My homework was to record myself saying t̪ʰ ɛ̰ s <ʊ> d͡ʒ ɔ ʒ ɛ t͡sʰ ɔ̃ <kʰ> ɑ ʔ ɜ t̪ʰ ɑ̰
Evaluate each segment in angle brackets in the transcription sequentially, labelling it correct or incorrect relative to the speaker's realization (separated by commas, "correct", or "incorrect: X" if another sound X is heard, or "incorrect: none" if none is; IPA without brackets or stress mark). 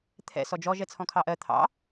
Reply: incorrect: ɔ, correct